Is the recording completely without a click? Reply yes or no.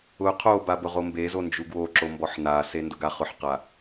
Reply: no